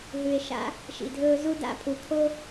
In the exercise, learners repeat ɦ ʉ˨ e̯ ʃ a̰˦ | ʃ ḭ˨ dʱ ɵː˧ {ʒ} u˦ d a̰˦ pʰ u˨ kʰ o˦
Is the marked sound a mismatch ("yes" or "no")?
yes